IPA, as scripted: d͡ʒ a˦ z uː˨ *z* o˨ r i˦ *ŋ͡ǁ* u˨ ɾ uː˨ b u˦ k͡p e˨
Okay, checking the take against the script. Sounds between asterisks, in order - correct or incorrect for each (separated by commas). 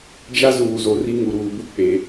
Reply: correct, incorrect